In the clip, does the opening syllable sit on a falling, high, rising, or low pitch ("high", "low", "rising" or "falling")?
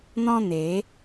high